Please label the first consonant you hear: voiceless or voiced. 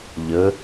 voiced